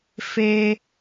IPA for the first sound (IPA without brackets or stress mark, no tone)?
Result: f